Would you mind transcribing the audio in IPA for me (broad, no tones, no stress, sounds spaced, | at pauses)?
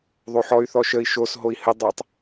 ðˤ o ħ ɔ y̯ θ ɔ ʃ ə i̯ ʃ o s ɦ o i̯ h ə dˤ ɛ tˤ